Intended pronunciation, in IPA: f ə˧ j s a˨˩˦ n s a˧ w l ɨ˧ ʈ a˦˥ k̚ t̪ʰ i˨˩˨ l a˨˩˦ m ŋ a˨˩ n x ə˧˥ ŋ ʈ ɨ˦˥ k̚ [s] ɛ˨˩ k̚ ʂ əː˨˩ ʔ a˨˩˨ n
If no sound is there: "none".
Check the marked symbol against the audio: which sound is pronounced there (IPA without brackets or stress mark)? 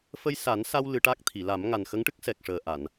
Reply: s